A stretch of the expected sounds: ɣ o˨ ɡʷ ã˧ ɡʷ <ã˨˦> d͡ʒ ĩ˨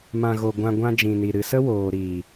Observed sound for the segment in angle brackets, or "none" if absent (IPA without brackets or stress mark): ã˧